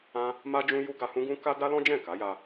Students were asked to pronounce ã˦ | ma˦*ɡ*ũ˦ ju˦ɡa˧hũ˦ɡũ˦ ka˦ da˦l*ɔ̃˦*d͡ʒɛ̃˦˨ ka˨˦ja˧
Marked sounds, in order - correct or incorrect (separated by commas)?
incorrect, correct